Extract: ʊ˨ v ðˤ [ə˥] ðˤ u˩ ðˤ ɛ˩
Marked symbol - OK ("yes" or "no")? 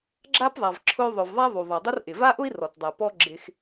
no